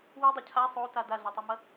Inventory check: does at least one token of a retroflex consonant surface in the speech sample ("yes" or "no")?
no